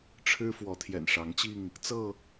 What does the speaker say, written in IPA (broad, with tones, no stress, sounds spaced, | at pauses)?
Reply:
ʈ͡ʂʰ ɻ̩˦ f w ɔ˨˦ t̪ʰ j ɛ̰˨˩ n ʂ ɑ˨˦ ŋ t͡ɕ i˥˨ ŋ | t͡s ɤ˥˨